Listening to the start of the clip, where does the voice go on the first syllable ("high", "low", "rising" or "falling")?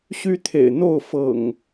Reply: high